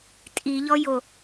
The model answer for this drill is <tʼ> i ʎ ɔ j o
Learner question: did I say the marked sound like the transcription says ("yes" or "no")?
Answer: yes